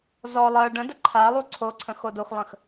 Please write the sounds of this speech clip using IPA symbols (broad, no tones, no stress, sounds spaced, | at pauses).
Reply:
z ɔ lˠ ɜ ɖ ə̃ d ə ǃʰ a lˠ u ǀʰ o ǀʰ ə̃ x o d o x lˠ ə̃ x